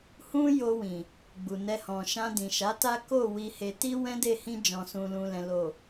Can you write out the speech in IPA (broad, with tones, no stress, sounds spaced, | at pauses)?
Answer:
h ũ˦ j o˧ w ĩ˨ | ɡ͡b u˨ n ɛ˧ h ɔ̃˨ ʃ ã˧ d ĩ˨ ʃ a˨˦ t a˦ k o˦˨ w i˧ h e˧ t i˦ w ɛ̃˦ d e˦˨ h ĩ˧ d͡ʒ ɔ̃˨ s ũ˨ l ũ˨ l ɛ̃˨ l o˨